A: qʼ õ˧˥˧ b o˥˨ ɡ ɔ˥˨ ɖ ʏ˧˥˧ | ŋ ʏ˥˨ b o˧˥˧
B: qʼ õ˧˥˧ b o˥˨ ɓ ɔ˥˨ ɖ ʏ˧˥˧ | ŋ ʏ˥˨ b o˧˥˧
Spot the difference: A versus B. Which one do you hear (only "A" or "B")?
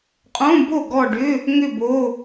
A